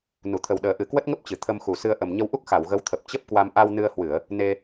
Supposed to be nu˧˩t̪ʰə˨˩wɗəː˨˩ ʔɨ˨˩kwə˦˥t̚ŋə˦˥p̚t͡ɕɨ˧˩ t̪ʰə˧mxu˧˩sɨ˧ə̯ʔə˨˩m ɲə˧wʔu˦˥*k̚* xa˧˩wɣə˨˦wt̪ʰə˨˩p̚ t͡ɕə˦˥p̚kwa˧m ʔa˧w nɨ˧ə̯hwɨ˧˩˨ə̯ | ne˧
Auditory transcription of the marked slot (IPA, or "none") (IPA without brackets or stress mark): k̚